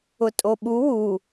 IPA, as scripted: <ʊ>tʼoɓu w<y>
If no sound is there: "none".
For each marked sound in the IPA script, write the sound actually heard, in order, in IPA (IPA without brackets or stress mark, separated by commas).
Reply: ʊ, u